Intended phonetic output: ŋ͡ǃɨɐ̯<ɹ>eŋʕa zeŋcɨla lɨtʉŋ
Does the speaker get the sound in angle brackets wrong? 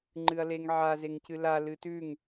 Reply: yes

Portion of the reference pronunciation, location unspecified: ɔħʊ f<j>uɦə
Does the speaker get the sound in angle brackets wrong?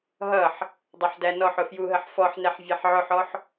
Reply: no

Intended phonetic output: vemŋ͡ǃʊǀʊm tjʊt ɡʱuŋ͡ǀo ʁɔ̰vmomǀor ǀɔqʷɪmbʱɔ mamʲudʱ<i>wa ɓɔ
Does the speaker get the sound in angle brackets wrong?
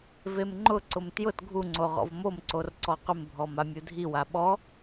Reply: no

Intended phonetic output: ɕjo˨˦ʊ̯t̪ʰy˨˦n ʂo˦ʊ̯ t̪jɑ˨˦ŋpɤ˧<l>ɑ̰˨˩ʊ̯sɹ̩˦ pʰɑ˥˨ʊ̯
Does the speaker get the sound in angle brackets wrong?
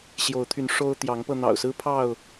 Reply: yes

